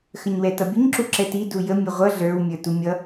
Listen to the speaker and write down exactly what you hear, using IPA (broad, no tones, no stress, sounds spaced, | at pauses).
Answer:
x ə ɲ w ɛ t ʌ bʲ ə ɲ ǁ u ǁ ɛ t i d u j ə mʲ ʊ ʁʷ ʌ ɮ ə˞ w mʲ ə˞ t u mʲ ʌ